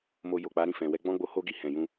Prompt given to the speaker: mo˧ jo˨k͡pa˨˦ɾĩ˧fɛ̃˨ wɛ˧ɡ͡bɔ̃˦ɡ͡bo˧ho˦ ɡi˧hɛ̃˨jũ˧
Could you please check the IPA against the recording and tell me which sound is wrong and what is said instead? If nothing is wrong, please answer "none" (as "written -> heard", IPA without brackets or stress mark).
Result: none